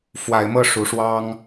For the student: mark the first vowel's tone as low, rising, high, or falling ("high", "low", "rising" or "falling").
rising